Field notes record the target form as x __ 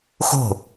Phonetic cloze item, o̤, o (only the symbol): o̤